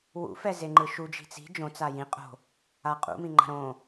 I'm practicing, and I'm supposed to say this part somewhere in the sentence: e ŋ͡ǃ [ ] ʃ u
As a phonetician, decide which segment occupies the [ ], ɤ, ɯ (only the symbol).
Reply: ɯ